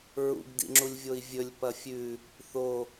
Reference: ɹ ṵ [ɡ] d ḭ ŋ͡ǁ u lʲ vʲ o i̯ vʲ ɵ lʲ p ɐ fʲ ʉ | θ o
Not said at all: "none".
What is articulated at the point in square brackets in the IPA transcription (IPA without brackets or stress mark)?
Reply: ɡ